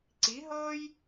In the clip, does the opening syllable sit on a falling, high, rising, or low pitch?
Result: rising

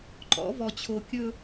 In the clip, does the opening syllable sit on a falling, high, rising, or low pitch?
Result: rising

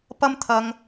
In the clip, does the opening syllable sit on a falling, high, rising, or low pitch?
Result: high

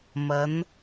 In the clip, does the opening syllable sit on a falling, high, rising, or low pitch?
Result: rising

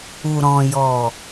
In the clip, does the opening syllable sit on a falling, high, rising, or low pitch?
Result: low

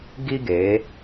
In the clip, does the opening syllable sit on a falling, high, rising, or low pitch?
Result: high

